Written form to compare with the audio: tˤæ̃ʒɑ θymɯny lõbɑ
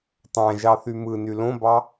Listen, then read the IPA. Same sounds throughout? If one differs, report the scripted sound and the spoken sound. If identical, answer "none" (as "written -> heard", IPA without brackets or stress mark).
none